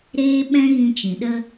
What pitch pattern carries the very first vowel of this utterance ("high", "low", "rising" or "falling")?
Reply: high